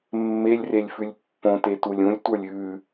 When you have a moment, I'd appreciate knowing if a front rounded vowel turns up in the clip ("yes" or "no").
no